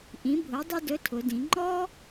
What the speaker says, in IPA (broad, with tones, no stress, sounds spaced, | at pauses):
ʔ ĩ˩˧ bʱ ʊ˩˧ dˤ ə˥ d ɵ˧˥ tʰ ʊ˩˧ d ĩ˩˧ ŋ͡ǃ ɔ˥